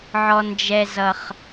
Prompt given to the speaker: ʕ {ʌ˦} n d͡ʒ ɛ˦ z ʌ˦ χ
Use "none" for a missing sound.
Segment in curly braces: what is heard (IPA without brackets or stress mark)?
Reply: ɔ˦